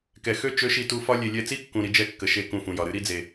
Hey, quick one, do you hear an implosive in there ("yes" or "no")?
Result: no